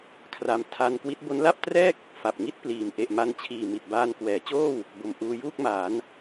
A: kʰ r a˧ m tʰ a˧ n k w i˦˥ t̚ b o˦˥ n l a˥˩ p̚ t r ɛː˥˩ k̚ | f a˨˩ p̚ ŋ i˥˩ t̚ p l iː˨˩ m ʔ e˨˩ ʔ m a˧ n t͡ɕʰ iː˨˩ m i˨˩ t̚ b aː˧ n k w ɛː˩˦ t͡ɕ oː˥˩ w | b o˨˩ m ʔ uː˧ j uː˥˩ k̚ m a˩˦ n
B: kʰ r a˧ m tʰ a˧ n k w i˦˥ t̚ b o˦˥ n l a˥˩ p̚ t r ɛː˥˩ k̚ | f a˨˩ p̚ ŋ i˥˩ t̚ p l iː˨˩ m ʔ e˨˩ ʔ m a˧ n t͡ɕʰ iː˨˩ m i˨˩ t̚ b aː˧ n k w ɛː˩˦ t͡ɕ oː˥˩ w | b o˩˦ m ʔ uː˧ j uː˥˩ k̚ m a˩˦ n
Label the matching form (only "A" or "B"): A